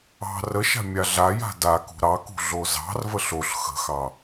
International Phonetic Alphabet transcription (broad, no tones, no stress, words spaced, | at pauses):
ɑ̤ rəʃa̤ mʲaɮaja̤ dakṳ ɾɑkṳ ɮozɑ̤rvəɬ oɬ xə̤xɑ